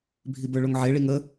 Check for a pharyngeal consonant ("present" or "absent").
present